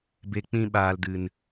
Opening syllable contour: low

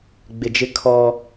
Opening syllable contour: low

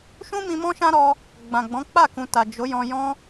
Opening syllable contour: high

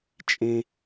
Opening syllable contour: high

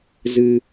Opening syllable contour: high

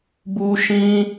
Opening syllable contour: high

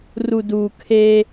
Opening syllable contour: low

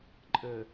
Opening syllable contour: low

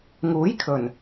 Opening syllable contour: rising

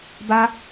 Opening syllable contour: high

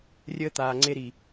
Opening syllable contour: high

